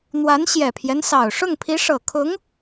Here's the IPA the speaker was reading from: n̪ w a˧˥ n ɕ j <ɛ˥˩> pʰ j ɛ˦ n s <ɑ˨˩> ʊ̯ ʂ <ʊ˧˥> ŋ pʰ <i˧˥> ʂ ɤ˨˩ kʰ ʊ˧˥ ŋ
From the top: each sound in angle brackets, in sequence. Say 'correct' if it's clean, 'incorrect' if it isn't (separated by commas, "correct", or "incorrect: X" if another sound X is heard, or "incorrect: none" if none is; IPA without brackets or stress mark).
incorrect: ɛ˨˩, correct, incorrect: ʊ˥˩, correct